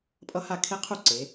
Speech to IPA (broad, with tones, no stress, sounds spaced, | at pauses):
pʼ ʌ˦ h a˥˩ kʰ e˦ qʰ u˥˩ ǀ e˩˧